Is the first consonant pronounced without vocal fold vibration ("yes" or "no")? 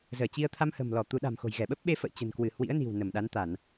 no